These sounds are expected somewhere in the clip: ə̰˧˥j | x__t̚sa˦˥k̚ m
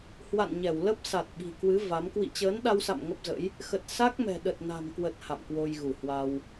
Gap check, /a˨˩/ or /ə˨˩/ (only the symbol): ə˨˩